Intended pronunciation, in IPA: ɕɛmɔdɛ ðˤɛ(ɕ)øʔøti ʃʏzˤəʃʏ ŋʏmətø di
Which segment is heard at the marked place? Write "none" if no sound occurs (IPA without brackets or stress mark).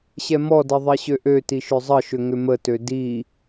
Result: ɕ